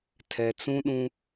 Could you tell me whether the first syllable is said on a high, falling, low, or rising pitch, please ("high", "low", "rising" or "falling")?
low